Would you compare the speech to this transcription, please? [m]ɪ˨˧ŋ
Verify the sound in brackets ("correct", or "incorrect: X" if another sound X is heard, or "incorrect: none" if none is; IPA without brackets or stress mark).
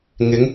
incorrect: ŋ